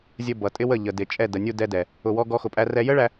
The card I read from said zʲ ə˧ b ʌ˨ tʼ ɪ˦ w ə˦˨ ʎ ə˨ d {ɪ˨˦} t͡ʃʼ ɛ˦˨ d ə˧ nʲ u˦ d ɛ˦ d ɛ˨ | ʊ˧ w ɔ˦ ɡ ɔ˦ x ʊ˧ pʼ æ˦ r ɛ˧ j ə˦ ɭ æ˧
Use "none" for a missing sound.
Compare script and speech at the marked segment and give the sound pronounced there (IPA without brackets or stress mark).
ɪ˨